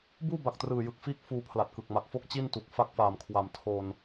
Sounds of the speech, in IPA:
b uː˥˩ b a˨˩ k̚ t r ɯː˨˩ j ɯ˨˩ k̚ f iː˥˩ k̚ f uː˧ pʰ l a˨˩ t̚ k ɯ˨˩ k̚ m a˨˩ k̚ f o˥˩ k̚ t͡ɕ i˥˩ n t u˨˩ k̚ f a˦˥ k̚ f aː˨˩ m kʰ w a˨˩ m tʰ o˧ n

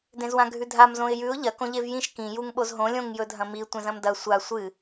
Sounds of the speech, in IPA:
d ẽ z w ã ɡʱ ʉ dʱ a m z õ ɪ̯ j ʉ ʊ̯ ʎ ɐ k õ ʎ e v j ĩ ʃ k ĩ j u ŋ ɓ o z ɦ õ lʲ õ ŋ j ɵ dʱ ɐ̃ m i tʷ ẽ z ɐ̃ m d ɐ sʷ a sʷ ɨ

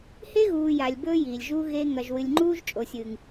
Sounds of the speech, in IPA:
h e˦ ɣ uː˨ j a˨ lʲ b ɵː˦ j iː˨ lʲ ʒ uː˦ ɣ e˦ ŋ ɐ˨ ʒ w ɨ˨ lʲ ŋ͡ǃ uː˦ ʒ t͡ʃʼ o˨ sʲ ɨ˨ ŋ

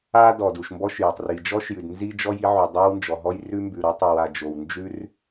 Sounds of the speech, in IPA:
a˥ d ɔ˩ d u˩ ʃ m b ɔ˥ ʃ j ɔ˩ tˤ r i˩ d͡ʒ ɔ˥ ʃ j ʉ˩ d n z i˥ d͡ʒ ɔ˥ j i˥ ʕ u˩ dˤ ɛ˥ w n d͡ʒ ɔ˩ ɦ ɔ˥ j r ʉ˥ m b ʉ˩ ɾ o˥ tˤ ʉ˩ w a˩ d͡ʒ o˩ w n d͡ʒ ʉ˥ r

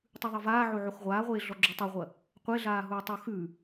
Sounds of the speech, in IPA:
tˤ ʉ ðˤ e v aː ʕ o ʕ o x ʁʷ aː ʁʷ eː ɮ ɔ ɡ͡ǁ y tˤ ʌ ʁʷ ɐ | qʷ e ɮ aː ɦ u i̯ tˤ o x ʉ

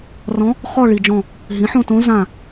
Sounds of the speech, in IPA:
r ɔ̃˧˥ | χ ɔ˦˨ ɭ i˨ d͡ʒ ɔ̃˦˨ | ɦ ĩ˩˥ ħ õ˦˨ t õ˧˥ z ã˦˨

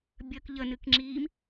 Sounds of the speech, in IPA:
bʲ ə k ʎ ə n ɨ k ŋ͡ǁ iː m

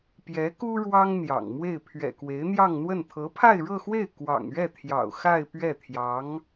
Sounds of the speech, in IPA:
p j ɛ˧˥ k u˥ ɻ w ɑ˥ ŋ n̪ j ɑ̰˨˩ ŋ m w e˥˩ ɪ̯ pʰ ɥ ɛ̰˨˩ k w e˧˥ ɪ̯ n̪ j ɑ˥˧ ŋ n̪ w ə˥˩ n t̪ʰ ɤ˧˥ pʰ a˥˧ ɪ̯ ɻ ɤ˥˧ x w e˥˩ ɪ̯ k w ɑ̰˨˩ ŋ ɥ ɛ˥˩ t̪ʰ j ɑ̰˨˩ ʊ̯ x a˥˧ ɪ̯ p ɥ ɛ˥˩ t̪ʰ j ɑ˧˥ ŋ

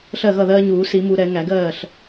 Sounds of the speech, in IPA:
ɬ ɜ˥˩ ɣ ʌ˥˩ ð ɜː˦ ɲ uː˨˩˦ s i˨˩˦ m u˨˩˦ ɾ ɛ˨˩˦ ŋ æ˨˩˦ ɡ ɜː˥˩ ɬ

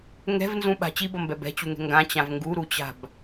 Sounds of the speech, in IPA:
ŋ ɛ̤ v n z ũ ɓ a̤ t͡ɕ i b ʌ m b ɛ b ɛ̤ t͡ɕ u ŋ ɛ̤ ŋ ɡ ã t͡ɕ ã v ŋ ɡ u ɾ u t͡ɕ a̤ b

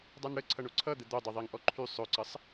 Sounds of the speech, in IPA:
dˤ a n ɽ ə ǀʰ ʌ ɳ o ǀʰ ʌ d̪ ə d̪ o dˤ ɵ ðˤ i ŋ ʔ ɔ ǃʰ y sˤ ɵ ǀ ə sˤ

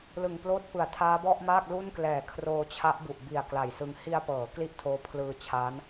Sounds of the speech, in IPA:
l ɯ˨˩ ŋ p l oː˥˩ t̚ p ɯ˨˩ a̯ tʰ aː˦˥ b ɔ˥˩ ʔ m aː˥˩ k̚ l u˥˩ n k l ɛː˨˩ kʰ r oː˧ t͡ɕʰ a˦˥ ʔ b u˨˩ ʔ b i˨˩ a̯ k l a˨˩ j s ɯ˧ ŋ h i˧ a̯ p ɤː˩˦ k l i˥˩ ʔ tʰ oː˦˥ pʰ l ɯː˧ t͡ɕʰ aː˦˥ n

